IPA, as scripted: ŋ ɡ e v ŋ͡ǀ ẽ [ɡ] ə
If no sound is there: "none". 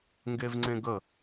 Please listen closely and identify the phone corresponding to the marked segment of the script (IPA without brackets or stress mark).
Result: ɡ